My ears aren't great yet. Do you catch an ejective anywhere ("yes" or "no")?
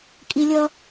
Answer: yes